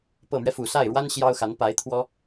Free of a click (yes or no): yes